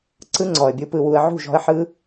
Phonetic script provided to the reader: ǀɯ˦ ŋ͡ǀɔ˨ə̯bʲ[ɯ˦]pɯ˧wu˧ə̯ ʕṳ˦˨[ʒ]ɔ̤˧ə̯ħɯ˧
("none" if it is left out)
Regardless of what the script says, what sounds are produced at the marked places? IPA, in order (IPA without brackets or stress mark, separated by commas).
ɯ˦, ʒ